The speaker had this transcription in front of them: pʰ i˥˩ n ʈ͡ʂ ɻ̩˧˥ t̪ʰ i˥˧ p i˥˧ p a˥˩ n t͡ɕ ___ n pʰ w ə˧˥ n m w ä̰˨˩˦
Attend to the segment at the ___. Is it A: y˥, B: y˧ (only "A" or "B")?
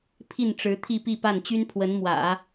A